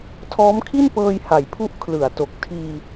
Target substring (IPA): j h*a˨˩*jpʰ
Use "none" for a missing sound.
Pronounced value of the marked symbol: a˩˦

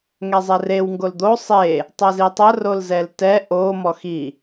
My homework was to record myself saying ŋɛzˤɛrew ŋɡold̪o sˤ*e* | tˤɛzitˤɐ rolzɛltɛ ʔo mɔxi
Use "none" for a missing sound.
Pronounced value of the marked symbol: e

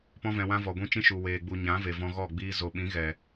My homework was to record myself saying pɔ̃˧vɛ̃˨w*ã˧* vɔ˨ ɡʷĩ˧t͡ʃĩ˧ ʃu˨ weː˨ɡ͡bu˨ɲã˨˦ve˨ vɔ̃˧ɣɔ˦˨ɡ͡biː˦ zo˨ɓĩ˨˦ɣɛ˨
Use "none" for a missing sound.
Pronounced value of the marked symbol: ã˧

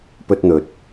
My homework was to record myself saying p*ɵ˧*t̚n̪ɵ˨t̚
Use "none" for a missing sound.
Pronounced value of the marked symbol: ɵ˥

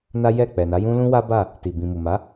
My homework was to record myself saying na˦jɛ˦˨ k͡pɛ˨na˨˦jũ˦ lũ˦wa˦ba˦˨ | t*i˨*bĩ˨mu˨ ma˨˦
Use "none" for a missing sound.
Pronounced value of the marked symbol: i˨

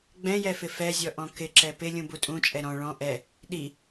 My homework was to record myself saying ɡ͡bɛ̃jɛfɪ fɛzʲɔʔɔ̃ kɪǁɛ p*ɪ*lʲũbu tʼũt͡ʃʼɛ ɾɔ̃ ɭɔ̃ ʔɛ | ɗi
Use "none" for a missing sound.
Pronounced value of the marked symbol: ɪ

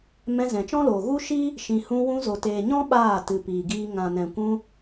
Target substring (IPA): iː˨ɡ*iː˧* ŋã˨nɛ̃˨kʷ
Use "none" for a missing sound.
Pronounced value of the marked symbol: iː˧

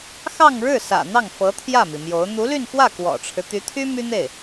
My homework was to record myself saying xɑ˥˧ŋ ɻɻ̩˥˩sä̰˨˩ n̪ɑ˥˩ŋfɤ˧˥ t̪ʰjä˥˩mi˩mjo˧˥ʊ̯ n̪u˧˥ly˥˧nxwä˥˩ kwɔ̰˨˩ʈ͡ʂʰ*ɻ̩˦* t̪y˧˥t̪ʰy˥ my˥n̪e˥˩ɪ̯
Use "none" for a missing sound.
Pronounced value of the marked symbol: ɻ̩˦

